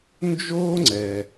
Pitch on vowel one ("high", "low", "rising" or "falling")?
high